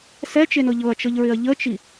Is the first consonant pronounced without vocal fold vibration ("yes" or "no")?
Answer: yes